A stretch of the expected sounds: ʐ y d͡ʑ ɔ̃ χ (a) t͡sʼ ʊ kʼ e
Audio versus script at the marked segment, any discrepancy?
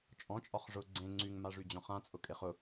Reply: yes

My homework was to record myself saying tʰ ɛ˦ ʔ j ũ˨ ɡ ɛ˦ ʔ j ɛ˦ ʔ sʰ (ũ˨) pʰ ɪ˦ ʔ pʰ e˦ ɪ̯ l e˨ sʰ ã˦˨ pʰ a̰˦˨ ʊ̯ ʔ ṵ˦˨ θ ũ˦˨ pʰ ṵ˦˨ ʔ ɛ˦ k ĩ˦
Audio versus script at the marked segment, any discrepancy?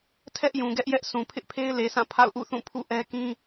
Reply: no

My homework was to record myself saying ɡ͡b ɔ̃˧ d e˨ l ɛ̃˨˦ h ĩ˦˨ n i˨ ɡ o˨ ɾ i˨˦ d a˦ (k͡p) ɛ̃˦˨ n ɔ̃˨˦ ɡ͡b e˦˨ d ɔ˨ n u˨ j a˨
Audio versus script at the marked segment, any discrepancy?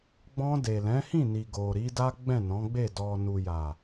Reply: yes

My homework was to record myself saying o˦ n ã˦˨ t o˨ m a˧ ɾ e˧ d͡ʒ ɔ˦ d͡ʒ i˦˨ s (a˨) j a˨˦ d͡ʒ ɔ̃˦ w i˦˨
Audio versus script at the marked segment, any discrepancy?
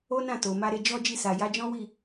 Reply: no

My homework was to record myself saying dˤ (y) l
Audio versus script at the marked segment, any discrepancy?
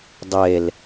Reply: yes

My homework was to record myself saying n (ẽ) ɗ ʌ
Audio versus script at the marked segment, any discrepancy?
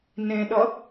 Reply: no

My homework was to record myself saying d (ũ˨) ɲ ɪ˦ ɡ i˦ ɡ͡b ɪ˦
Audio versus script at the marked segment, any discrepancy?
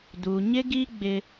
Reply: yes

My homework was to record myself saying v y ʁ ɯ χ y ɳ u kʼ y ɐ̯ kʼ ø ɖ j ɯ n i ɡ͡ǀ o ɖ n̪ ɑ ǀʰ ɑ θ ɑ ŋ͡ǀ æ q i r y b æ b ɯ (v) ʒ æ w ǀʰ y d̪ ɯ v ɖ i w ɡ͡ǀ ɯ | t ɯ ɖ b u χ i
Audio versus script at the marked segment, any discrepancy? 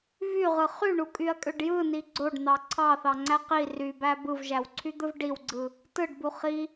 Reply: no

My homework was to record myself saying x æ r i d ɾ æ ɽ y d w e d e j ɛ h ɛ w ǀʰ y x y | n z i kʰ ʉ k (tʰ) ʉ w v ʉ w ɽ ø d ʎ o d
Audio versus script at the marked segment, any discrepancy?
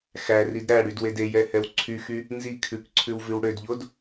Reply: yes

